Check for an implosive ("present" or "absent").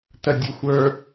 absent